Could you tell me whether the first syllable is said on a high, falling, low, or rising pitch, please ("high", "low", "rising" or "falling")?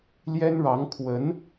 high